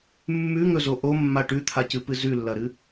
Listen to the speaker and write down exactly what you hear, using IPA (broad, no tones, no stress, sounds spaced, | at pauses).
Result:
mː ʉ ŋ ɵ z o ʔ o mː a ʈ ʉ t̪ʰ a c ɨ p ɨ z ʉ lː ɐ ɾ ɨ